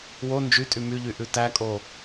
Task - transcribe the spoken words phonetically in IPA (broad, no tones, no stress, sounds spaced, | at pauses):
w o n d͡ʒ y tʼ y m y ʎ y ʔ ʉ t æ kʼ o